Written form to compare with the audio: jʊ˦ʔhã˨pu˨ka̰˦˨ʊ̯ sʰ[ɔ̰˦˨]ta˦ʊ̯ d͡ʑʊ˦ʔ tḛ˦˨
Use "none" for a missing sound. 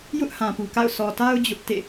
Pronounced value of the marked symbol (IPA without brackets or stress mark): ɔ˨